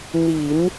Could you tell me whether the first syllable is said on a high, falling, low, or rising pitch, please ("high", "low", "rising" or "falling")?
low